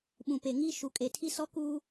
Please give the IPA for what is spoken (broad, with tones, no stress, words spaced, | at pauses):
ɓũ˨pe˨ŋi˦ ʃu˨kʼe˨ tʰi˦sɔ˦kuː˦